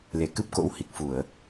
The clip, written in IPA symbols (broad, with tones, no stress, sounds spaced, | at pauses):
l e˧˩ k ɨ˦˥ p̚ k o̰˧˥ w h i˨˩ k̚ f u˧˩˨ ə̯